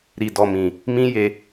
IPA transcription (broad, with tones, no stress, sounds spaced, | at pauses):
ɾ i˨ d ɔ˨ m ĩ˨ | m ĩ˦ j e˧